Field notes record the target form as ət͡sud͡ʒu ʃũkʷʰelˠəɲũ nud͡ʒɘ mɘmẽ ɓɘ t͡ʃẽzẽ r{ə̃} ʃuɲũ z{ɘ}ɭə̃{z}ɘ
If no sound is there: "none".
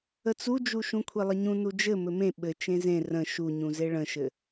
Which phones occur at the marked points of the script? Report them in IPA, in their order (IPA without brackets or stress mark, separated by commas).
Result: ə̃, e, ʃ